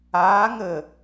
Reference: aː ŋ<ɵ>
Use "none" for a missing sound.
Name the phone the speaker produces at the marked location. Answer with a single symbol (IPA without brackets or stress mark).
ə